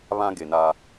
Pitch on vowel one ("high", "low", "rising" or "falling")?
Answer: high